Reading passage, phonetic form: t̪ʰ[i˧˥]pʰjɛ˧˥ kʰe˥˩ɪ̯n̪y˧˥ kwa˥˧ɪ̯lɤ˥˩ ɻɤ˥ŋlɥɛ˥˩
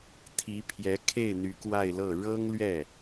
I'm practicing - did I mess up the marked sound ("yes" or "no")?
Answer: no